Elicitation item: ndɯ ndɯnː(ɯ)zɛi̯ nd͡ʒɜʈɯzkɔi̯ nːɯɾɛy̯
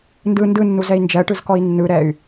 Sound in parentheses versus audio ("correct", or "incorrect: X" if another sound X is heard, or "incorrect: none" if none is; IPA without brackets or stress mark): incorrect: u